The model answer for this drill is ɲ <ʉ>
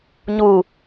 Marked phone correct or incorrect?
incorrect